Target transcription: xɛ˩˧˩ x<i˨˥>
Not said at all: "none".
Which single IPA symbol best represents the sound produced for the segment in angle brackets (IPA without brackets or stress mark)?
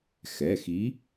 i˨˥